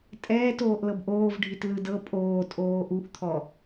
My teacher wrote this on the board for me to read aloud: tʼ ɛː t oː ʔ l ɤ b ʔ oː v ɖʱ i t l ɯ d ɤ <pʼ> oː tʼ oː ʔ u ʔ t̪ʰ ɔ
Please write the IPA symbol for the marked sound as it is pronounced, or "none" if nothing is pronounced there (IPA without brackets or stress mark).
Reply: pʼ